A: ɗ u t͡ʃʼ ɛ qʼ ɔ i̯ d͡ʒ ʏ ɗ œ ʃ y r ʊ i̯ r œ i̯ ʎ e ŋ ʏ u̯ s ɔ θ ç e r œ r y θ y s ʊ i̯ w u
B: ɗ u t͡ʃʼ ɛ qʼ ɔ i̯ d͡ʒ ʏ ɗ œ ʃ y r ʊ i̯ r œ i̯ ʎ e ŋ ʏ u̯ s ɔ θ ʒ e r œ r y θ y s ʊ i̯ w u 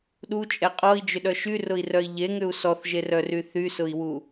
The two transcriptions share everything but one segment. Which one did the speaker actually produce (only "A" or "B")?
B